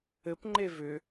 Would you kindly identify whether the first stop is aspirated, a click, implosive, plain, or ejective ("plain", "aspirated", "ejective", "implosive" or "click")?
plain